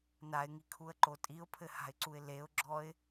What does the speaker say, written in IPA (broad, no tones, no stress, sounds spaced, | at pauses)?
n a ɪ̯ ŋ i kʰ u ə̯ ǃ o tʼ i ʊ̯ pʰ ɘ h a̤ ɪ̯ ǀ u ɪ̯ l e ʊ̯ ɡ͡ǁ ɔ ɪ̯